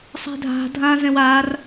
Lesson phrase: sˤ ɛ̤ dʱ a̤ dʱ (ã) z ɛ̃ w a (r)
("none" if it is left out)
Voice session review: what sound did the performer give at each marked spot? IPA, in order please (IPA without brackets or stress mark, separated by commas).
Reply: ã, r